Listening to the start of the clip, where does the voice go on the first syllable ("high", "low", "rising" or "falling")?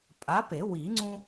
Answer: rising